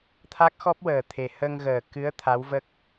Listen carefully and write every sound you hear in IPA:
t̪ʰa˦˥k̚xɔ˦˥p̚wəː˨˩t̪ʰe˨˩ hə˧ŋɣəː˨˩kɨ˧˥ə̯ t̪ʰa˧˥wvə˦˥k̚

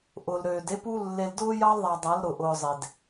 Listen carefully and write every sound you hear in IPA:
ʔʊ˨lɾøː˨de˦ pu˦ lːe˨ldʊː˦ jɑ˦lðˤa˨ dˤa˨˦lɾʊ˨ʔʊː˨ zˤe˨d

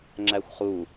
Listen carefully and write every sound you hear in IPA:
ŋ͡ǁæxʷχu

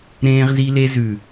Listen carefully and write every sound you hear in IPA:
ɾẽː˧ʁzi˧le˧ zʉ˨

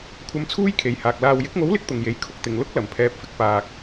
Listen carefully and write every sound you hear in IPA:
kʷʰɐ˧mt͡sʰuː˥jkʰe˨jhaː˨k̚ laː˨wjɪ˨˥k̚ŋo˨˥wlɪ˨˥k̚ t̪ʊ˨ŋje˨˥j kʰʊ˨˥k̚t̪ɪ˨ŋ lʊ˥k̚ lɐ˨mpʰɛː˧p̚fɪ˨˥k̚ paː˨k̚

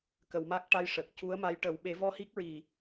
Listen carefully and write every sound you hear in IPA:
kə˨˩˨wma˦˥k̚ ʈa˧jʂə˨˩k̚ cu˧˥ə̯ma˧˥jʈə˨˩˦w ɓe˨˩˦vɔ˧hi˦˥k̚ɹi˨˩

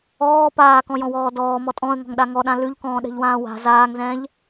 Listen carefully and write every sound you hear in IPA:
ɔː paːkɔ̃jɔ̃wɔː dɔːmɔ tʼɔ̃ə̯ŋɔ̤ŋɗa ŋɔɗã lʉʎkɔ̃ːɗɛ̤ʎwãː wa̤ zaːŋzɛ̃ːʎ

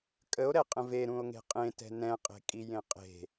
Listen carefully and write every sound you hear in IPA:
kʼəo̯ɾɛqʼə̃ ve ɾũo̯ŋe̤qʼẽtɛ̤ nɛ̃qʼe̤kʼi jẽqʼe̤

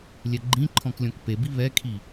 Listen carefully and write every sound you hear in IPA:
lʲɛɡ͡ǃĩǃʰɔ̃k lʲɔ̃kpebi βɛkʰi

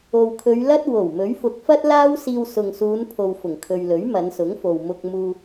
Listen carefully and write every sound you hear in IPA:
o˨wkʰɵ˨˧ɥlɐ˥t̚ wo˨˩w mɵ˨˥ɥfʊ˨˥k̚ fɐ˥t̚laː˥wsiː˧w sʊ˨ŋsuː˨˧npʰo˨w fʊ˨˩ŋkʰɵ˨ɥlɵ˨˥ɥ mɐ˨˧nsʊ˨˥ŋfo˨wmʊ˧k̚ muː˧

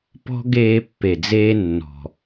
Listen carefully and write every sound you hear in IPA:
pɔ̤˦ ɡeː˧pːe˨d͡zeː˧ nːɔ̤˨

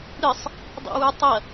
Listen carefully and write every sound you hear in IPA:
ɾɨsˤ | dˤḛwʉtˤɐ

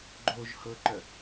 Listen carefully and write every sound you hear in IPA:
ɡ͡ǃoʒ hɤǃœ

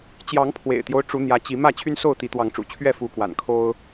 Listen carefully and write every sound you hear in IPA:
t͡ɕjɑ˨˦ŋ pʰwḛ˨˩ɪ̯t̪jo˦ʊ̯ ʈ͡ʂu˨˦n̪jä˨˦t͡ɕi˨˦ mä˥˨t͡ɕʰy˦nso˥˨ʊ̯ t̪i˨˦ t̪wɑ˨˦ŋʈ͡ʂṵ˨˩t͡ɕʰɥɛ˥˨ fu˨˦kwa̰˨˩n kʰo˦ʊ̯

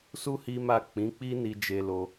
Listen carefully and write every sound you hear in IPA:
su˦ hi˦ ma˦˨ k͡pĩ˨˦k͡pi˦ni˧ d͡ʒe˦lo˦

